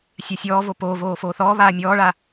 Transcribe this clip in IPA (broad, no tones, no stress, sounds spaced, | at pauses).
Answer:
sʲ a sʲ ɔː v o p oː v oː f oː θ ɔː β aː mʲ ɔː ɭ a